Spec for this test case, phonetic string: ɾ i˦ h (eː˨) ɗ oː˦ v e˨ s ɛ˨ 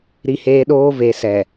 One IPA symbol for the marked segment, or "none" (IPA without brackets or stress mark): eː˦